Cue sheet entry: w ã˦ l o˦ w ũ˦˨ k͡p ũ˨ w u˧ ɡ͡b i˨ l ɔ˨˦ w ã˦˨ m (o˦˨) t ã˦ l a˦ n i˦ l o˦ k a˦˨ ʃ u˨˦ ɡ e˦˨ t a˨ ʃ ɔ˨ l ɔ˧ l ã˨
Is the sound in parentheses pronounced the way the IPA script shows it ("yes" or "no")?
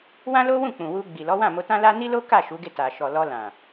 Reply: no